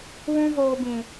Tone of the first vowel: high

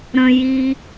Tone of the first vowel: low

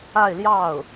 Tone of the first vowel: falling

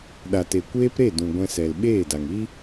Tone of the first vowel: low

